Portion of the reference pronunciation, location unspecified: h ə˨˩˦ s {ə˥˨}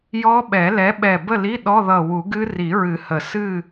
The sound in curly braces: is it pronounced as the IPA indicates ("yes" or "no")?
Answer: no